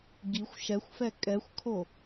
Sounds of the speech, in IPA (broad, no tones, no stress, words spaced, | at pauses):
ɡixʷ ʃɛxʷfɛ kʼɛxʷkʰo